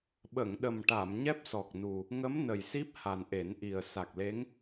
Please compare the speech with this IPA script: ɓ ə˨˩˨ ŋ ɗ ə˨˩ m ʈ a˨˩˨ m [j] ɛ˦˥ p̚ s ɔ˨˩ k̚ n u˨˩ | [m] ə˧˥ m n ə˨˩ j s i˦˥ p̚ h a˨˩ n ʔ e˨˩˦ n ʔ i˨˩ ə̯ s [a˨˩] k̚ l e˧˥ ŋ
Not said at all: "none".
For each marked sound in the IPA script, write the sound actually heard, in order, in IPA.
ɲ, ŋ, a˨˩

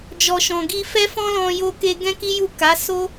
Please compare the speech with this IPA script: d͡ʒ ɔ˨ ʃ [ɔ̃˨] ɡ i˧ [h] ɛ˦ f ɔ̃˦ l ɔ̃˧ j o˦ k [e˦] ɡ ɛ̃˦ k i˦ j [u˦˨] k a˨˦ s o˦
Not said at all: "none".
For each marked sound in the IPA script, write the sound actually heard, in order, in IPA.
ɔ̃˨, f, e˦, u˦˨

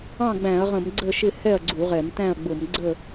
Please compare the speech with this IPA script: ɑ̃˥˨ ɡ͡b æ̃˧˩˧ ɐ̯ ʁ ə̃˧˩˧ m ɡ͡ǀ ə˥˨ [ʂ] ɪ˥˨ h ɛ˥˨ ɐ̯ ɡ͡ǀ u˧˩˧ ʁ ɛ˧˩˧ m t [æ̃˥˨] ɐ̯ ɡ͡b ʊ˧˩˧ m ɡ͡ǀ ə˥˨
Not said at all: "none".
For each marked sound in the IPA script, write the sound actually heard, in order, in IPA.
ʃ, æ̃˥˨

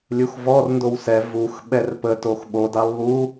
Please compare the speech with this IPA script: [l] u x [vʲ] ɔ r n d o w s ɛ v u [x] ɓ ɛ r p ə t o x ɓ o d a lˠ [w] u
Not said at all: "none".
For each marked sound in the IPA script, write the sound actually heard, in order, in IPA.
lʲ, v, x, β

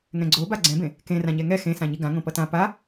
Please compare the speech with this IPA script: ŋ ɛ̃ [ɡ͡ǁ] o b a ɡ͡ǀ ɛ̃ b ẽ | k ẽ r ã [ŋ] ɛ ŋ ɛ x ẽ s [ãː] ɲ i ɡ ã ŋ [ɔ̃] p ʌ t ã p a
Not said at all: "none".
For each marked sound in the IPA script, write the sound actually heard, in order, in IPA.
ɡ͡ǀ, ɲ, ã, õ

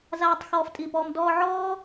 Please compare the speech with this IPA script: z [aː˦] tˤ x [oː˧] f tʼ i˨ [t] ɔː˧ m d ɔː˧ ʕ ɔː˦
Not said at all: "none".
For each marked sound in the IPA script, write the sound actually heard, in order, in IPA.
aː˦, ɔː˧, p

